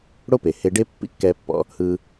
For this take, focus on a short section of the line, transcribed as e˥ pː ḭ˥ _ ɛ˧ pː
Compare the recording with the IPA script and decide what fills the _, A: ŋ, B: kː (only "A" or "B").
B